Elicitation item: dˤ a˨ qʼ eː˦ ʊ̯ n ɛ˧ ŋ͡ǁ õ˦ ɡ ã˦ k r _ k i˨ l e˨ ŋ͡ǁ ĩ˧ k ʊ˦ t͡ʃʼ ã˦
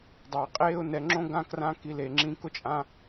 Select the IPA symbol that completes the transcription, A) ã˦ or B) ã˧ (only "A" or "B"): B